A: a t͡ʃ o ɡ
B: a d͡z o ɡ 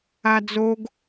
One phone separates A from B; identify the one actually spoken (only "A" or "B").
B